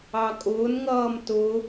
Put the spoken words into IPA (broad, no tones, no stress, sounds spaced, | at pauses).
ɑ kʼ ʊː n ŋ ʌː m t ʊ